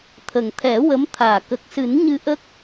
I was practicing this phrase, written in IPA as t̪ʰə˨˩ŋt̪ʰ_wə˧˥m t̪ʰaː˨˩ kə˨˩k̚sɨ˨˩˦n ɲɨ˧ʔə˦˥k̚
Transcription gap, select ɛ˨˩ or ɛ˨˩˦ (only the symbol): ɛ˨˩˦